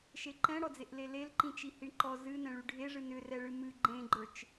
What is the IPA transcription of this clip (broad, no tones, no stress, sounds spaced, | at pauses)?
ʃ e ǃ ɛ̃ ɽ ɔ d͡z e ʔ l e l e l ǃ ĩ t͡ʃ i h i ɳ ǃ ɔ z ɨ n ɛ̃ ɭ y ɖʱ e ʐ ɨ n ʏ r ɛ ɭ ɨ m ɨ ɡ͡ǃ ẽ ɡ͡ǃ ə˞ t͡ʃ